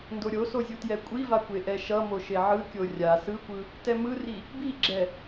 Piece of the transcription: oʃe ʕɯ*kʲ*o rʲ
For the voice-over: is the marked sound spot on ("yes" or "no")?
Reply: yes